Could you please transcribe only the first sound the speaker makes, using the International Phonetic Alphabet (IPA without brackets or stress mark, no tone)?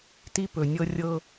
t